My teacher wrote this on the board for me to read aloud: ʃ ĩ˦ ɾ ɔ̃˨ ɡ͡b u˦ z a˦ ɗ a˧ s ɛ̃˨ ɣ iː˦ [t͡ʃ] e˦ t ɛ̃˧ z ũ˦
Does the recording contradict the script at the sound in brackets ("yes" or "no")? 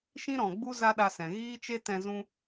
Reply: no